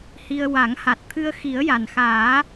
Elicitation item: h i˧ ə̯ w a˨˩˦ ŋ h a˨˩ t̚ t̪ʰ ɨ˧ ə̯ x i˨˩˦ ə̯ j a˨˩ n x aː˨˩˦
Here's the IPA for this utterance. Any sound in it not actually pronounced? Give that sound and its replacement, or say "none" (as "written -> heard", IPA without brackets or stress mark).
none